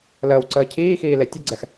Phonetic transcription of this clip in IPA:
ləːwǀəː cʰiːxiː letʲəɡ͡ǀɛx

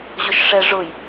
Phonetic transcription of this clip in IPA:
ʑʊʃʂɛʐʊj

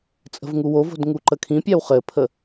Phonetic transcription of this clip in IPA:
t͡sʼə̤vŋuwovo̤d ŋuǃəkʰĩpʲaw χɘpʰə

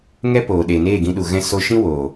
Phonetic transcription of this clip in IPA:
ŋɛ˦poː˨ ɗe˨neː˦˨ɡĩ˧ɗu˨ ɣɛ̃˦ so˧ ʃĩ˦wo˨

